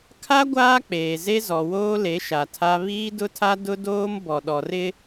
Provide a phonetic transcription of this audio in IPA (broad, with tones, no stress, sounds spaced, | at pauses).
kʰ a˦ ɡʷ aː˦ k͡p eː˨ z e˦ z ɔ˨ w oː˦ l e˨˦ ʃ a˨ tʰ a˦ β iː˦ d ʊ˦ tʰ a˦ d ʊ˦ d oː˦ m b ɔ˨ ɗ ɔ˨ r ɪ˦